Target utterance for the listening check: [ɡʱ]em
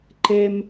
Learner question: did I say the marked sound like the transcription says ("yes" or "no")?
no